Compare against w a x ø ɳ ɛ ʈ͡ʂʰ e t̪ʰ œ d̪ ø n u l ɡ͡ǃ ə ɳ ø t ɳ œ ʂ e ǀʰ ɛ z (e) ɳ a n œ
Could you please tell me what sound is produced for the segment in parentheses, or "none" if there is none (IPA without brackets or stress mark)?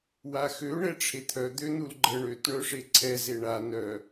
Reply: e